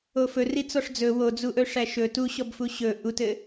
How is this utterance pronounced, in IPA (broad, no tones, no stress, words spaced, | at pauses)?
ofɵ rit͡sɔʂd͡zɵ wod͡zuʔɵ ʂæʃɵ tuɕɔbfu ɕɵ ʔutɘ